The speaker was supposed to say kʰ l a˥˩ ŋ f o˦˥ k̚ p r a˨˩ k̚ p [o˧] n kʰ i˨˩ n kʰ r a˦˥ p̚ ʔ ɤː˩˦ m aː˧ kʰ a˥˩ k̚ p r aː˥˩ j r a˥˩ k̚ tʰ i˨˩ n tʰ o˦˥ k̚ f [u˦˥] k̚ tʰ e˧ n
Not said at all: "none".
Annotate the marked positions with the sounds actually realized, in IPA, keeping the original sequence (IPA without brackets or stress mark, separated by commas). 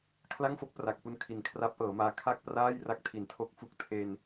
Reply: u˧, u˦˥